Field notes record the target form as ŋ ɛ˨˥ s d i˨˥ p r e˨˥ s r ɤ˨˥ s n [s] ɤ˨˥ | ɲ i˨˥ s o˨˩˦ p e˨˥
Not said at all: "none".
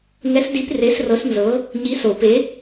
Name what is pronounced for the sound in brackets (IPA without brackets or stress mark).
z